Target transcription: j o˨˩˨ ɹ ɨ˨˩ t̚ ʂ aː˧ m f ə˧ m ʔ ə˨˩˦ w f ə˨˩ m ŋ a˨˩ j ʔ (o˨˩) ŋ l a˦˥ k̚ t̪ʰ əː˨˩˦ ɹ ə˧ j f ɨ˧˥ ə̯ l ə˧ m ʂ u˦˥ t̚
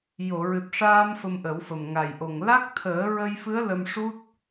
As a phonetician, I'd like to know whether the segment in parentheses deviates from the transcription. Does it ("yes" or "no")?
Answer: no